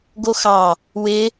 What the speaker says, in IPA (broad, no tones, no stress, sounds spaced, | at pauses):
ɡ o x ɑ | w ɪ